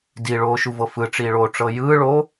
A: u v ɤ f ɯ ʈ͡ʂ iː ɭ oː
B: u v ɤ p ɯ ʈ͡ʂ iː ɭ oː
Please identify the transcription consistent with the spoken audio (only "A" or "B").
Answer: A